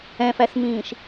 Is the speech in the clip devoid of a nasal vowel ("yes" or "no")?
no